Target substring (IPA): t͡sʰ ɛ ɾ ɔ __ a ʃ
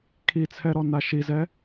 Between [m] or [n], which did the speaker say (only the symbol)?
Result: n